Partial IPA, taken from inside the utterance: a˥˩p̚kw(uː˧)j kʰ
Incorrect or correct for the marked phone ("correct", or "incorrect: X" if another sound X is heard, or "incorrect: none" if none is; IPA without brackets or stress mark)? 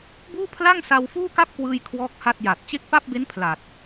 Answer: incorrect: ɯː˧